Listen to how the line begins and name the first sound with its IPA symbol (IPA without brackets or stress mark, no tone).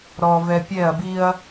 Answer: ɾ